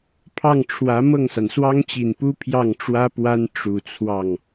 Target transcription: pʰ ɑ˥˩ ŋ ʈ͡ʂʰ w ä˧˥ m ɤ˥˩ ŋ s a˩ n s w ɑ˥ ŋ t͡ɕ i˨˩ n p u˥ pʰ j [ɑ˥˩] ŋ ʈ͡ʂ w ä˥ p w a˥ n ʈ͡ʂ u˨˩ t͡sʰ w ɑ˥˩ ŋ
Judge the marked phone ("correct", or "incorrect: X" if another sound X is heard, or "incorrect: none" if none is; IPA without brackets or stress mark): correct